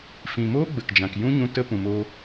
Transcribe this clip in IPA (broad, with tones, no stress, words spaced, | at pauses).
fĩ˨moː˦ ɡ͡bə˨kd͡ʒã˨kjũ˦ɲũ˧ tə˦ pũ˨moː˧